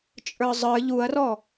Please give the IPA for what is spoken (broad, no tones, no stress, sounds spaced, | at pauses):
t͡ʃʼ ə˞ zˤ ə˞ ʎ u ɐ̯ r ɔ